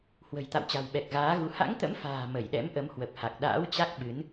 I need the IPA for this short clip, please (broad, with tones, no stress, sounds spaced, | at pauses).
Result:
h w ə̤˨˩ j t̪ a̰˧˨ w t͡ɕ a̤˨˩ w ɓ ɛ˨˩ k̚ ɣ aː˨˦ ɣ u˨˦ h a̰˧˥ ŋ t̪ ə̰˧˥ m f a̤ː˨˩ m ə˧˩ j ɗ ɛ̰˧˥ m ʔ ə˨˦ m h w ə˨˩ p̚ h a˨˩ k̚ ɗ a̰ː˧˥ w t͡ɕ a˦˥ k̚ ɓ ɨ˨˦ n